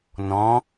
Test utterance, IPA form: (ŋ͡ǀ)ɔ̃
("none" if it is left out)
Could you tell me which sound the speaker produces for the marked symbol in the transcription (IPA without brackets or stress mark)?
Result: n